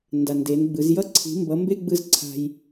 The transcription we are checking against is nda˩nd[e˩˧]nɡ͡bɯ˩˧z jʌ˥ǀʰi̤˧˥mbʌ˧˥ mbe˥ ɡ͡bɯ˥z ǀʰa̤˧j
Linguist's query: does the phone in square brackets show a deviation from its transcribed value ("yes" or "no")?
no